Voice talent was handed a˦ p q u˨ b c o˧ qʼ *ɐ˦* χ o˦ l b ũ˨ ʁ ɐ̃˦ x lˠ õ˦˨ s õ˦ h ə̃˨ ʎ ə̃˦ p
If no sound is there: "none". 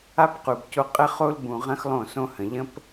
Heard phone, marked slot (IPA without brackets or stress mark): ə˦